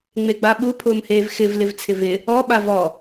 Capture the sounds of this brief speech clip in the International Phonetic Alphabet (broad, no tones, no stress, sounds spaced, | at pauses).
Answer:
ŋ͡m e ɡ͡b a ɓ u pʰ ʊː m h eː v x ɪ v l ɪ v t͡sʰ ɪ v ɪ | ɔ ɓ a v ɔ